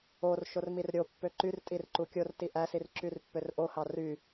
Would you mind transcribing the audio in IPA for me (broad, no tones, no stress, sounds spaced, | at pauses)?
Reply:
o r ʃ o r m i r ɾʲ o pː ø ǃ y r tʼ i r ǃ u kʲ o r t i ʔ æ s i r ǁ y r pː ø r ʔ o h ɑ r y